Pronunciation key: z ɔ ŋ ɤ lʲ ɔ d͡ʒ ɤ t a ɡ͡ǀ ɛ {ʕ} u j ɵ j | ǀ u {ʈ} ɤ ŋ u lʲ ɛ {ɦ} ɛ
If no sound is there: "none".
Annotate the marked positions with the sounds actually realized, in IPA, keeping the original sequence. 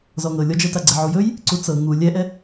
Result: ʕ, t͡s, ʔ

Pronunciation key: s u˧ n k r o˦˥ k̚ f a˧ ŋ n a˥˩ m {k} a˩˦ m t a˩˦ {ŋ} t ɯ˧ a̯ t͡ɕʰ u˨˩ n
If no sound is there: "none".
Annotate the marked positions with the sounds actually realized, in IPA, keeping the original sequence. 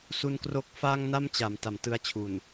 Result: t͡ɕ, m

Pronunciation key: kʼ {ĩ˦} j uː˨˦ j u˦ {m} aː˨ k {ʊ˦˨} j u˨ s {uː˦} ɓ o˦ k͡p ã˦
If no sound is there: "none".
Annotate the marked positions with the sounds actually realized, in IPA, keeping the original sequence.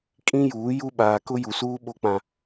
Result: ĩ˦, ɓ, ʊ˦, uː˦

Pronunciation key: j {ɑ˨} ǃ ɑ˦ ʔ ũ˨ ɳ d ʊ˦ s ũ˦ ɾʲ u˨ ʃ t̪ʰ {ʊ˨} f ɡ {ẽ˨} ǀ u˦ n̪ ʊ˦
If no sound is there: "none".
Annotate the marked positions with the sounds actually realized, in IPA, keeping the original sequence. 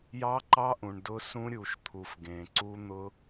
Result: ɑ˦, u˨, ẽ˨

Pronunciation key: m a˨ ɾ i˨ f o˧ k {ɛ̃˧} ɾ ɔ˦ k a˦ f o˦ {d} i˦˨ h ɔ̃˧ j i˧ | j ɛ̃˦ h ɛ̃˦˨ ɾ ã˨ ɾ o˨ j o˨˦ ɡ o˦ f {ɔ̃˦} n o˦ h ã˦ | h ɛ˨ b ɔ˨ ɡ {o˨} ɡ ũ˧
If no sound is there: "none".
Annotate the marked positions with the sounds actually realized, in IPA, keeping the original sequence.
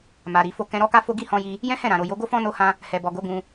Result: ɛ̃˧, ɡ, ɔ̃˦, o˨˦

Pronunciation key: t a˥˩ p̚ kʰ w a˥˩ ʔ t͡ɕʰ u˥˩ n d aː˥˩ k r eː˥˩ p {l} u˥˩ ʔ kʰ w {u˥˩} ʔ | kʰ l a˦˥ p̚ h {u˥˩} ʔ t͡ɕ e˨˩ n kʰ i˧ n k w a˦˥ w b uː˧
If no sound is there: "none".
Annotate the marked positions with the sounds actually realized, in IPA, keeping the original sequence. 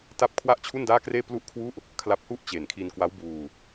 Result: l, u˥˩, u˥˩

